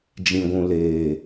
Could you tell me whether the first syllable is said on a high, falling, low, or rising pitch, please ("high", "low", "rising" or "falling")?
low